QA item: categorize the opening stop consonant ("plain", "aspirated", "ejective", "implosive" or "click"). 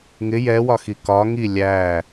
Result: plain